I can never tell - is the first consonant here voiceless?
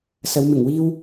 yes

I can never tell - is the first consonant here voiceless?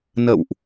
no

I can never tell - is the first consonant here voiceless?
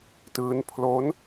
yes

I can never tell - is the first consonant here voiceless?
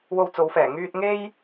no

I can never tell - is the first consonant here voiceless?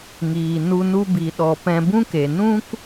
no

